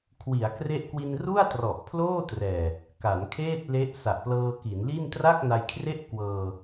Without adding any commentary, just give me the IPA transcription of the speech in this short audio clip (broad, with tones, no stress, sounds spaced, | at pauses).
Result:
kʰ w i˩˦ a̯ k r e˦˥ ʔ k w i˧ n r u˥˩ a̯ t r ɔ˨˩ ʔ pʰ l oː˥˩ t r ɛː˨˩ | k a˩˦ n kʰ eː˥˩ t̚ l e˦˥ ʔ s a˨˩ ʔ p l ɤː˧ k i˩˦ n l i˥˩ n t r a˥˩ k̚ n a˧ j kʰ r e˥˩ ʔ k w ɤː˧